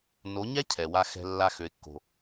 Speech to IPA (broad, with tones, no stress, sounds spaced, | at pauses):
n o˨˦ ɲ ɛ˦ cʰ ɛ˨ w a˧ x ɛ̤˧ lː a˧ x ø˨ ɪ̯ kː o̤˨